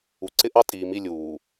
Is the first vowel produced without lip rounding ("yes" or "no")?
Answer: no